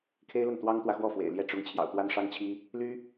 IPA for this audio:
kʰe˥ɪ̯lə˥˩n t̪wɑ˥ŋt̪wä˨xwɔ˥˩ fwḛ˨˩ɪ̯ljɛ˥˩ ʈ͡ʂʊ˥ŋ t͡ɕʰjɑ̰˨˩ʊ̯t̪wa˥nʂɑ˥ŋt͡ɕʰi˥ | ly˥

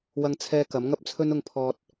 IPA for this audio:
wɐ˧ŋt͡sʰɛː˧ kɐ˨˥mŋɐ˥p̚t͡sʰɵ˥n ʊ˧ŋpʰɔː˧t̚

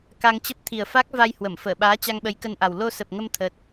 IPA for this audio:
ka˧ŋt͡ɕə˦˥p̚ t̪ʰi˨˩ə̯fa˦˥k̚va˧j hwə˧˩mfəː˧˩ɓaː˨˦ t͡ɕa˧ŋɓə˨˦jkə˧nʔa˨˩w lo˧sə˨˩p̚ ŋə˧m t̪ʰə˦˥t̚

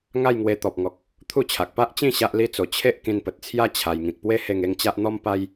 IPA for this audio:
ŋa˥˧jŋwe˧ t̪ɔ˨p̚ŋɔ˨k̚ | t̪ʰu˥˧t͡ɕʰa˨k̚ pa˦ʔt͡ɕĩ˥˧ ɕa˦ʔli˦t͡so˧ t͡ɕʰe˦ʔ kĩ˧npə˨t̚t͡sʰja˦ t͡ɕʰa˧j ŋĩ˨k̚pwe˦ he˥˧ŋ e˥˧ŋt͡ɕa˦ʔn̪ɔ˦m pa˦j

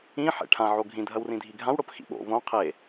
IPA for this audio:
ĩ ħḛʈʰã ʕoɡʱĩ dʱɐwrĩdʱiɡʱãw ɽopxḭɓo̰ võ qʰe

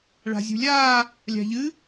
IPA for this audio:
ɭa̤zʲṳlʲaː | lʲa̤ʎɨ

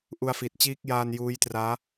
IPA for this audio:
ʔu˧a̯fi˨˩t̚ t͡ɕiː˦˥k̚jaː˧n juː˦˥jtraː˦˥

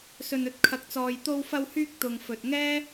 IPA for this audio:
sɵ˧nɵ˥t̚kʰɐ˧k̚t͡sɔː˧j t̪o˧wfɐ˧whyː˧k̚ t̪ʊ˨ŋfɵ˨t̚ŋɛː˥

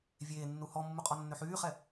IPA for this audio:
vʲeːnːu hɔmːuqʼɔnːø ħyːχɛ

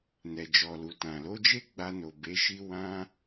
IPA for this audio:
nɛ˨d͡ʒɔ˨lu˨ tã˨ lo˨˦d͡ʒe˦ ɡ͡ba˧no˨ be˨˦ʃi˦ wã˦

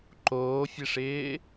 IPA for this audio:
ǃoːfʲɘʂɪː

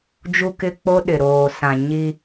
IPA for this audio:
d͡ʒu˦kɪ˦k͡po˦ ɗɪ˨ɾoː˨sã˨ ɲi˦

